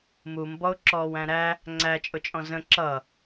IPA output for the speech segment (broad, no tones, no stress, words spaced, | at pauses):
mumbɔʊ̯ ǁɔːwæ̃ɾæ | ŋ͡ǀæt͡ʃʼʊt͡ʃʼɔ̃ zə̃ ǁʌ